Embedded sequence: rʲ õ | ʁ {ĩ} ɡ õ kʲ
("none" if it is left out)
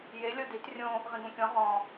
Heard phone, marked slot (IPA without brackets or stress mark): ĩ